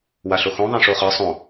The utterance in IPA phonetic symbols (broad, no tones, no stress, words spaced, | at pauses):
waɬoxõ ðˤẽʂoχɤ sˤõ